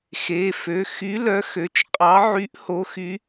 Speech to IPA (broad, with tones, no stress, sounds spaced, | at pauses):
x e˩˧˩ f ø˩˧˩ x y˨˥ l œ˨˥ x ø˩˧˩ t͡ʃ qʼ ɑ˨˥ ʕ y˨˥ ʔ h o˨˥ x y˨˥